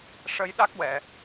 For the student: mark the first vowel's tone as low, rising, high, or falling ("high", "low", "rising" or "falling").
rising